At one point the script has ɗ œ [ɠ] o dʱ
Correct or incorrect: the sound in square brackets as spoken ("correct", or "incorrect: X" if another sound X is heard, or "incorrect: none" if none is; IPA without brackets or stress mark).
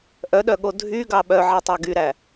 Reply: correct